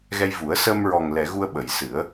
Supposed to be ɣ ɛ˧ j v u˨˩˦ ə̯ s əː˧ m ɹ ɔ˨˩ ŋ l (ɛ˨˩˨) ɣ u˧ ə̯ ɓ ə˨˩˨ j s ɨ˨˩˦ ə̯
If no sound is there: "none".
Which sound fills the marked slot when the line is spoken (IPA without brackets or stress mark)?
ɛ˨˩˨